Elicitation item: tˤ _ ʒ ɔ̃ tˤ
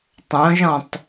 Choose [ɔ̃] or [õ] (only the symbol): õ